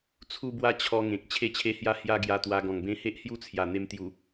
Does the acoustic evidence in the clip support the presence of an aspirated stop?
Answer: yes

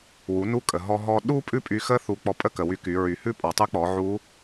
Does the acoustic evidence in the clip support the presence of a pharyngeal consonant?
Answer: yes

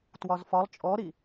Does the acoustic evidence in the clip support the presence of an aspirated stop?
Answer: no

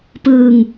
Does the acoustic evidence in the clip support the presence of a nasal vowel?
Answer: no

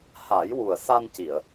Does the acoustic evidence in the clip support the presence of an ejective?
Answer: no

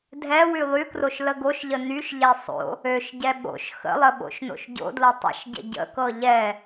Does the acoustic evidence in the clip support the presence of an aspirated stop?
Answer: no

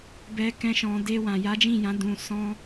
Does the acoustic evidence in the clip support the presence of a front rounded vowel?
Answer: no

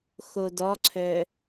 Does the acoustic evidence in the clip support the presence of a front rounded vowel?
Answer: yes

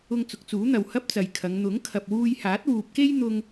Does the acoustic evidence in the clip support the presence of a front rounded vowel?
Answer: no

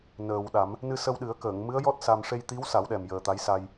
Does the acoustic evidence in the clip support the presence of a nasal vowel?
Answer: no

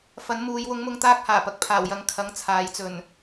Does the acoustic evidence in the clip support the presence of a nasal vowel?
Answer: no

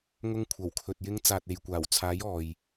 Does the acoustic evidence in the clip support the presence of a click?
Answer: no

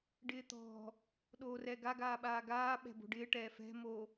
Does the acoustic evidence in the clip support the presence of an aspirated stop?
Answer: no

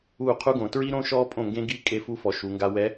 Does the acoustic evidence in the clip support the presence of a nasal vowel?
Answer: yes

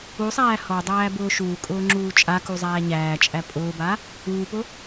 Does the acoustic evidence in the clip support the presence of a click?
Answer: yes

